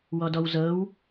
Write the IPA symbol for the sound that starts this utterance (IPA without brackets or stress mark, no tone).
w